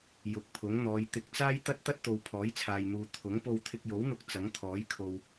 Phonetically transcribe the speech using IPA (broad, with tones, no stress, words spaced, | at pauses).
jʊ˨˥k̚pʰʊ˨˥ŋn̪ɔː˨˧j t̪ɪ˨k̚t͡saː˥j t̪ɐ˥t̚t̪ɐ˥t̚t̪o˨w pʰɔː˨˥jt͡sʰaː˨jn̪uː˨ t̪ʰʊ˨˥ŋ po˧wt̪ʰɪ˧k̚jo˨˥wn̪ʊ˧k̚ t͡sɐ˨˥ŋt̪ʰɔː˨˥jkʰo˨w